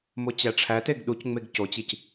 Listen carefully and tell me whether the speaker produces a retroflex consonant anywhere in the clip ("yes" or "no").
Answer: yes